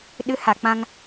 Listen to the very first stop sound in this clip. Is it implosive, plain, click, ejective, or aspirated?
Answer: implosive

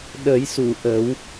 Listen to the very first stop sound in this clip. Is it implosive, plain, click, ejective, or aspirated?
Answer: implosive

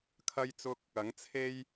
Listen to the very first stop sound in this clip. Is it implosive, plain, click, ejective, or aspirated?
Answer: aspirated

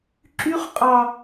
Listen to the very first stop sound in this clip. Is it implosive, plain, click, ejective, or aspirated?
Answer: click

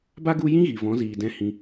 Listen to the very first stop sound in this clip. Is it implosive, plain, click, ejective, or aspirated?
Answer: plain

